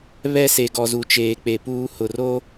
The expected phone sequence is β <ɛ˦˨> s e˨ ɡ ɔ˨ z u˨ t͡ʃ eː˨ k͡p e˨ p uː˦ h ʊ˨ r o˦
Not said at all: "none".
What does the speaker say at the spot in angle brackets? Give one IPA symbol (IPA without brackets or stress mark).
ɛ˦˨